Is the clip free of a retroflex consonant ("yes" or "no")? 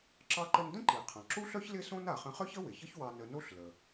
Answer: yes